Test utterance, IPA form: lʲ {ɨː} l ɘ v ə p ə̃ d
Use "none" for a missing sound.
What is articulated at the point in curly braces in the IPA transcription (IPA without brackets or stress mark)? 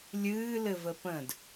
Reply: ɨː